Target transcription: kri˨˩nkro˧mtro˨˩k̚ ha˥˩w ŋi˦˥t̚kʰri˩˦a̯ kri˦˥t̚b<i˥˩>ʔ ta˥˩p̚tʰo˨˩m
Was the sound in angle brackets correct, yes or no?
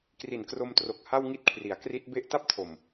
no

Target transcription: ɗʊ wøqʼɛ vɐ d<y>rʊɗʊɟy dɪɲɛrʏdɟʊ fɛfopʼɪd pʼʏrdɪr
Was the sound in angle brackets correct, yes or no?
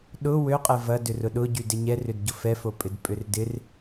no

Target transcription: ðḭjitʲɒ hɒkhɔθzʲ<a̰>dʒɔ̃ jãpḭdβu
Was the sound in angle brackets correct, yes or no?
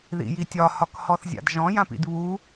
yes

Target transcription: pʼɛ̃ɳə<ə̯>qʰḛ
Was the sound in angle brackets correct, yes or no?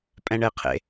no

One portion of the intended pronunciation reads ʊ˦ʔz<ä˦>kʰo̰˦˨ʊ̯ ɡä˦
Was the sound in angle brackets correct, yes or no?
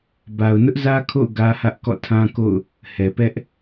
yes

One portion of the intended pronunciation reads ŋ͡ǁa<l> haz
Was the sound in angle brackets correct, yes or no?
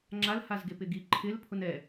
yes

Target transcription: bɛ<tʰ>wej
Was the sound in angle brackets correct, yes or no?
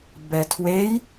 yes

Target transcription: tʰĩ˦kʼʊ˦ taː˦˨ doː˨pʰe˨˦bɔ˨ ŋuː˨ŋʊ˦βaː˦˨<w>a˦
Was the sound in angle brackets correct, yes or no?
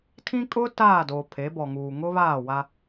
yes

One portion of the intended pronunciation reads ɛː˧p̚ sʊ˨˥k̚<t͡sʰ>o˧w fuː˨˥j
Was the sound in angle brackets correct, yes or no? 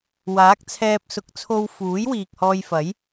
yes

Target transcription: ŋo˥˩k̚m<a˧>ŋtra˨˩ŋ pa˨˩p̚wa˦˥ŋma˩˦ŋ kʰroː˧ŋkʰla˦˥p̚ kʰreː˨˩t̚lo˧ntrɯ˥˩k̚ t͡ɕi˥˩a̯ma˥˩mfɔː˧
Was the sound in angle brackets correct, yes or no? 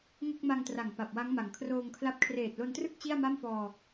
yes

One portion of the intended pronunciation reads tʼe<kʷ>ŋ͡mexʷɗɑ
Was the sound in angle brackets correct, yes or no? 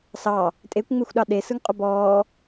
yes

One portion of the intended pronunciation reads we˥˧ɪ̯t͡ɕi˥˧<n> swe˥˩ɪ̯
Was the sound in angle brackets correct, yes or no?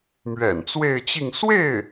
no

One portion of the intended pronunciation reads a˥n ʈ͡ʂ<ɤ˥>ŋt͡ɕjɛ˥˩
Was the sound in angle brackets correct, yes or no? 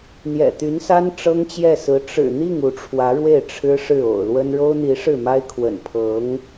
yes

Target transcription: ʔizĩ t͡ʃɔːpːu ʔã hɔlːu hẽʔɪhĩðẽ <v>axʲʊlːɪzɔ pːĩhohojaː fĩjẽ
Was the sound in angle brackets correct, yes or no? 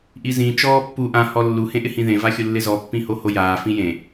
yes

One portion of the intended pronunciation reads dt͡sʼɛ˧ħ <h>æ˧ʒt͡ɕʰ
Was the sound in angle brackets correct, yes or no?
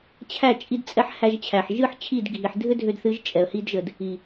yes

